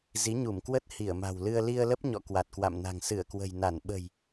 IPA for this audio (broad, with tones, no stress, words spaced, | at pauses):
zi˨˦ɲu˧˩mkwə˦˥t̚ hi˧˩ə̯ma̤˨˩wlɨ˧ə̯ li˧ə̯lə˦˥p̚ɲɔ̰˧˨ kwa˨˩t̚kwa̰˧˨mna̤˨˩ŋ sɨ˧˩ə̯kwə̤˨˩jna˧˩n ɓə̤˨˩j